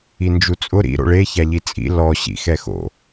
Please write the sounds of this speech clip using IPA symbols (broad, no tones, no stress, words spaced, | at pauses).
ind͡ʒut͡sʼʊ ɾḭ ɾo̰ɭe çaʎit͡sʼḭ lɔ ɕḭxɛxo̰